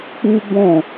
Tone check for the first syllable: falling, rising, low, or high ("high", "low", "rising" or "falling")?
high